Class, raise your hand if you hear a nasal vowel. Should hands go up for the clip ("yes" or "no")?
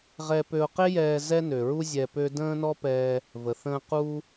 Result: yes